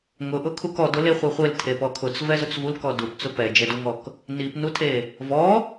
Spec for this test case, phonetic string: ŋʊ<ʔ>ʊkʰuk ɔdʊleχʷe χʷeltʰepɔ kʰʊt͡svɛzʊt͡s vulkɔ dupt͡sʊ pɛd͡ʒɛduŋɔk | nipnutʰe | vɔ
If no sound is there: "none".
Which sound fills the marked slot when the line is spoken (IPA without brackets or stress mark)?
ʔ